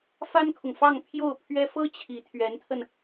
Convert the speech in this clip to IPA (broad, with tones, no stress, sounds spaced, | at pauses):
f a˥ n kʰ ʊ˨ ŋ f ɑ˥˧ ŋ pʰ j o˥˩ ʊ̯ pʰ ɥ ɛ˥ f ɤ˥ t͡ɕʰ i˧˥ t̪ʰ ɥ ɛ˧˥ n t̪ʰ ə˧ n